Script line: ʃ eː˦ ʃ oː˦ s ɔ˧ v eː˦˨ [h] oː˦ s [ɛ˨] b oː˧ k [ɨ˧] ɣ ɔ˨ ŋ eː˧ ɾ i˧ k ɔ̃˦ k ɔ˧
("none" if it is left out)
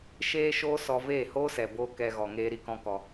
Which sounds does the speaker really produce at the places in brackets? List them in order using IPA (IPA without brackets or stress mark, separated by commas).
h, ɛ˨, ɛ˧